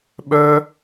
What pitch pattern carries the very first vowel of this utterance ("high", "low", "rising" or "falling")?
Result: high